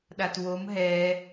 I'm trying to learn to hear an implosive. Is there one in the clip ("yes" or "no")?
yes